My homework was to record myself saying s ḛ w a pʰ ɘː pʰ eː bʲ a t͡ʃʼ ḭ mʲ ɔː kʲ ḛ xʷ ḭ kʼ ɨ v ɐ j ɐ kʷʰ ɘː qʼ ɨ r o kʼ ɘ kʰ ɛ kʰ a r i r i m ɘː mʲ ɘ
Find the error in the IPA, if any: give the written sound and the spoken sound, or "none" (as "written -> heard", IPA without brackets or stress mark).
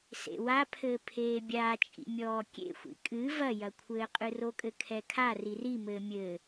none